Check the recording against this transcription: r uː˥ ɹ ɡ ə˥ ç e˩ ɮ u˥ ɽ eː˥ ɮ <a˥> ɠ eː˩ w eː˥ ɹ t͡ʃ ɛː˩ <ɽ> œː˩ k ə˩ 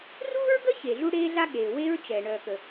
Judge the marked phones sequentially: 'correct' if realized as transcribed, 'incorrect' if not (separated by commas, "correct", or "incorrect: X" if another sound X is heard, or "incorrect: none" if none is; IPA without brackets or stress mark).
correct, incorrect: ɳ